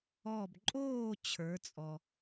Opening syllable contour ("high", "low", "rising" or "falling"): falling